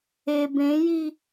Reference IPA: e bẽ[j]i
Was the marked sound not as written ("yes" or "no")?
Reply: no